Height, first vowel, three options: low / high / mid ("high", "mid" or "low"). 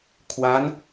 low